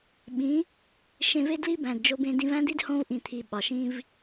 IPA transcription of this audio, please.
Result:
ɓĩ˨˦ | ʃẽ˧ve˦dli˦ bæ̃˨dd͡ʒo˧bẽ˧ dĩ˧væ̃˦d̪i˦d hõ˧vʔĩ˨t̪ʰi˨ ɓɒ˨ʃĩ˦v

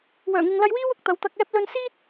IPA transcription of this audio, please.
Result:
wœː˨˩ŋɪ˨ŋlɐ˧jwiː˥w ʊ˨k̚t̪ɐ˨˧w t̪ɐ˧k̚ɛː˥p̚ lɵ˧nsiː˥t̚

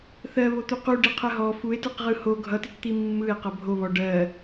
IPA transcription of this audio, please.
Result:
θɜ βot̪uqu ɖiqʰɜɦɔ fue̯tɯq ʁɯho ɡʱʌtitt̪i mːɯe̯qʌ bʱoβɔ ɖɜ

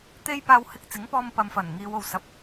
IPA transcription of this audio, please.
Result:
t̪e˥jpaː˧w hɪ˧k̚t͡sɪ˨˥ŋpɔː˧m pɐ˨m fɐ˨˩nŋiː˨˧w o˨wsɐ˨p̚

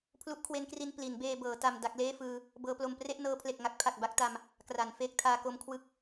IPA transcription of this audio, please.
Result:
pʰlu˦˥ʔkʰwe˦˥nkri˧n pli˩˦nbeː˧bɤː˩˦ ta˧m da˦˥k̚ leː˥˩fɯː˧ | bɤː˦˥plo˧m pre˥˩ʔnɤː˦˥pʰle˨˩k̚ŋa˦˥k̚ pʰa˨˩k̚ba˥˩k̚ta˧m | kra˩˦n feː˦˥k̚tʰaː˧ko˦˥mkʰwɯ˥˩k̚

